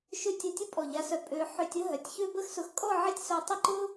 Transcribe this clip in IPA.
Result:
ʃ ø˥ tʲ ʊ˧˩ tʲ ə˥ pʼ ɔ˧˩ ʎ a˧ s œ˧ pʼ ø˧ ħ ø˧ tʲ ə˥ ɦ œ˩˧ tʲ ç ø˥ b ə˥ x s ʊ˧ x kʼ ɔ˥˧ ʕ ɪ˥˧ tʲ s œ˧ tˤ ɪ˥˧ ǃ ʊ˥

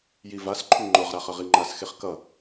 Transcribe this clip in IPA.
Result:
j i v a s ǃʰ u ŋ͡ǃ o ʁ ɾ a χ ʌ ʁ i ŋ͡ǃ a s x e χ k ʌ

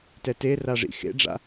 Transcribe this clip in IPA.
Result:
t ɛ t e r a ʐ ḭ x ḛ ɖ͡ʐ a̰

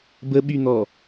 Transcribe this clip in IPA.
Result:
b ə ɓ y n̪ ɔ

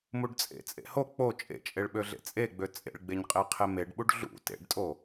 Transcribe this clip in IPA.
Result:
m u ɖ t͡sʼ ḛ t͡sʼ ḛ h o k͡p o t͡ʃʼ ḛ t͡ʃʼ e ɭ ɓ ø ɮ ḛ t͡sʼ e ɡ͡b ø t͡sʼ ḛ ɭ ɡ͡b e ɲ qʼ e qʰ e m e ɖ ɓ u ɖ ɮ ṵ t ḛ ɖ tʼ o

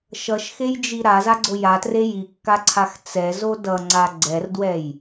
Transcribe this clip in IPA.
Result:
ʃ ʌ ʃ x e j d͡ʒ i ɾ a z a ɡ͡ǀ o j a t r e j i kː a ǀʰ a x t͡s ɛ z o d ʌ ŋ͡ǀ a ɡ͡ǀ ɛ r d w ɛ j

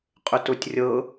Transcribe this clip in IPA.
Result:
qʼ ʏ t ʊ tʲ rʲ ɤ

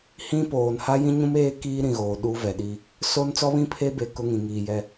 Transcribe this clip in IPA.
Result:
h ĩ˦ p oː˨ n h a˦ j ĩ˦ ɲ ũ˦ m eː˦ k iː˦ ɾ ĩ˨ ɣ oː˨ ɗ u˦ v ɛ˨ ɗ i˦ | s o˦ n t͡s ɔ˦ β ĩ˦˨ pʰ e˦ b e˨ k ʊ˦ ŋ ĩ˨ ŋ iː˨ j ɛ˦

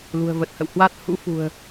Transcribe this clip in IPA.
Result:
l ṳ˨˩ ə̯ v ə˨˩ t̚ h ə̰˧˨ w h w a˦˥ t̚ h ṵ˧˥ f ṳ˨˩ ə̯

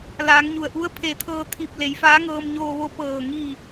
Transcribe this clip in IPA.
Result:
l aː˩˧ ŋ ɲ u˩ ə̯ ʔ u˧˥ ə̯ pʰ e˧˩ t̪ʰ ɤː˧ t̪ʰ i˧˩ p̚ l e˩˧ j f aː˧˥ ŋ ɤː˧ m ɲ oː˧ ʋ o˧ p ɤː˧˩ ŋ i˧˩

